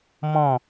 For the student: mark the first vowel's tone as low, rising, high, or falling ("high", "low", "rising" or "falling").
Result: falling